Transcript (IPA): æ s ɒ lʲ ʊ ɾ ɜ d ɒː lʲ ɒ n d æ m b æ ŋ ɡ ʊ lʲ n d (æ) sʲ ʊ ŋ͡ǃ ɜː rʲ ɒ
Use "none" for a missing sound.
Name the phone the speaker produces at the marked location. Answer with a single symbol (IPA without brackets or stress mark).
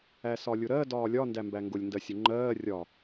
ɜ